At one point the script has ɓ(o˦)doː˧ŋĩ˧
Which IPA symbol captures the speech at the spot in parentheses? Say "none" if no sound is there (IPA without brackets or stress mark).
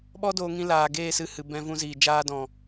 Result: ɔ˦